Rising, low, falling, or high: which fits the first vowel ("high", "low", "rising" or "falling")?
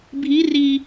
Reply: rising